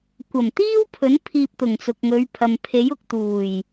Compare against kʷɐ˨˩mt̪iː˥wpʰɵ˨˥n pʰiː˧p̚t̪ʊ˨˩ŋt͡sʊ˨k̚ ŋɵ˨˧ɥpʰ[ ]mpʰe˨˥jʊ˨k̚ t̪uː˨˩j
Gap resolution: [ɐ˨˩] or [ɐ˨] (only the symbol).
ɐ˨